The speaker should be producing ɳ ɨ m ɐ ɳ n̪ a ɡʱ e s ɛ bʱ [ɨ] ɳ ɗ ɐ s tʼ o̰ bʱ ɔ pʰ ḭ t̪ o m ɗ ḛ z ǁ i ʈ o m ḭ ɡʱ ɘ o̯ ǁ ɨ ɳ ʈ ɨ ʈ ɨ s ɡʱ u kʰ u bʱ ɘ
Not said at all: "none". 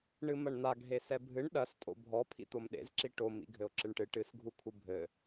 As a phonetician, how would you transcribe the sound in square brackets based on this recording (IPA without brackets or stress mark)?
ɨ